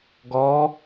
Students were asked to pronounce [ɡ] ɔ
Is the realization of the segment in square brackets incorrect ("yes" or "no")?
no